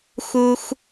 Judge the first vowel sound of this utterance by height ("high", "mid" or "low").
high